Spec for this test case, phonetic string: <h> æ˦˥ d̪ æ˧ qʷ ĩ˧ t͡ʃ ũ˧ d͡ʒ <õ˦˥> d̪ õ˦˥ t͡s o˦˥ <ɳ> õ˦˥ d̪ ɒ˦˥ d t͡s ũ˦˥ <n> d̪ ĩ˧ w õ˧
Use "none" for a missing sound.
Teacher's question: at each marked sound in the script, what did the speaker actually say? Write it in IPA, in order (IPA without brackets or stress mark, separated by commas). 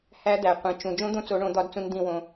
h, õ˦˥, ɳ, n